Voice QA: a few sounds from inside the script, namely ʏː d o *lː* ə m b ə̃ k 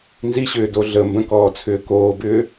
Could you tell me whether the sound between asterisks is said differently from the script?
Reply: yes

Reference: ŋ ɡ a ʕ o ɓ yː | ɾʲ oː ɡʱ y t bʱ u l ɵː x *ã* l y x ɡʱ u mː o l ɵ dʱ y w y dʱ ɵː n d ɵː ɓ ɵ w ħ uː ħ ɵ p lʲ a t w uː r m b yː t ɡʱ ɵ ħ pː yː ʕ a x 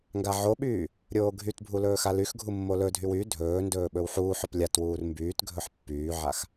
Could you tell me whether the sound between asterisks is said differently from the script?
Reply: yes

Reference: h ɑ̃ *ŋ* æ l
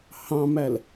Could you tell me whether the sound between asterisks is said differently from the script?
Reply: yes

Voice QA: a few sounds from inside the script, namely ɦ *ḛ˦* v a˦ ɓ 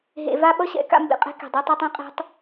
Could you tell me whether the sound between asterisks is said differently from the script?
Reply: yes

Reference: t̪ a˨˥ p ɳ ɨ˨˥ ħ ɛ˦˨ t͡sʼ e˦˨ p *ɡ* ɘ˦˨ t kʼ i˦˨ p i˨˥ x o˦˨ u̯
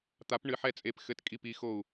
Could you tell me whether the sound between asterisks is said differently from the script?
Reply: yes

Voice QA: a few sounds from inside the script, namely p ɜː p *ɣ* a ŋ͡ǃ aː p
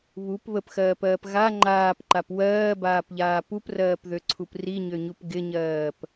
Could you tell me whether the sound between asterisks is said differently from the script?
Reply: no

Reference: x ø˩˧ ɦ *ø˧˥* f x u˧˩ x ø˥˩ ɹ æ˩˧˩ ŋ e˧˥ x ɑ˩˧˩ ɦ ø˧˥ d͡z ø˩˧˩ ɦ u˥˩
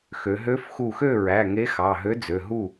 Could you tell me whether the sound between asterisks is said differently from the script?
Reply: no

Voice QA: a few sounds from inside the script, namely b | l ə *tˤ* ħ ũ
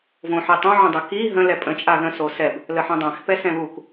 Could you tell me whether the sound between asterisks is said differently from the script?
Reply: yes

